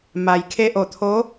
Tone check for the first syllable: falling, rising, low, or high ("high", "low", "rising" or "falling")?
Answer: low